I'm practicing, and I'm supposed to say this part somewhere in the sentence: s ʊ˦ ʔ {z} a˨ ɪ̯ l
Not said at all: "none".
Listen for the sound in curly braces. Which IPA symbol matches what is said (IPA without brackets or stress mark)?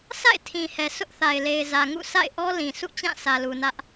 θ